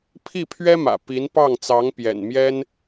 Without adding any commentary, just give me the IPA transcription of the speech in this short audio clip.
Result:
pʰi˥˩pʰɥɛ˥mä̰˨˩ pi˧˥npɑ˥˩ŋ t͡sɑ˧˥ŋ pjɛ̰˨˩nmjɛ˥n

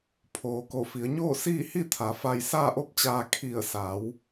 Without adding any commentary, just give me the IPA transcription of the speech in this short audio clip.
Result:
pʰoː˩ ko˧˩fi˩˧ə̯ɲoː˥˨siː˥˨ hi˥˨t̪ʰa˩˧fa˧j saː˥˨ʔo˥˨p̚t͡ɕaː˧ kʰi˧˩ə̯sa˩˧w

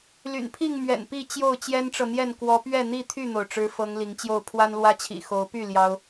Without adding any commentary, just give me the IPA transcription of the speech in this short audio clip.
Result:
ly̰˨˩npʰi˥˨ŋ mɥɛ̰˨˩n pi˥˨t͡ɕjo˥˨ʊ̯ t͡ɕjɛ˦nʈ͡ʂɤ˨n̪jɛ˥˨n kwɔ˨˦pɥɛ˥˨n̪i˥˨ t̪ʰy˥˨n̪o˩ʊ̯ʈ͡ʂɻ̩˨˦ fɤ˨˦ŋ li˨˦ŋt͡ɕjo˥˨ʊ̯ pʰwa˦nlwä˦t͡ɕʰḭ˨˩ xo˨˦ʊ̯py˥˨ ljɑ˦ʊ̯

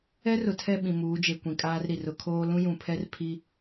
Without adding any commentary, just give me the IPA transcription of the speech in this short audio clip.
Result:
ɛ˦rʊ˨tʰɛ˦˨ ɓĩ˨muː˨˦d͡ʒe˨ kʷĩ˨kʼaː˦rɾi˨ rʊ˨kʰoː˦ lũ˦jũ˨pʰɛ˦r pʰi˦

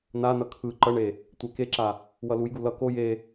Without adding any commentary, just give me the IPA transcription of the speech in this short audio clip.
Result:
nanʌ kʰɯ ǃʌɳe | tʷɛkeǁa | wʌlujɡu lʌ ko je

